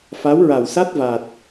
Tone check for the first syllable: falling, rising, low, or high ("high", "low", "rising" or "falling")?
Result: rising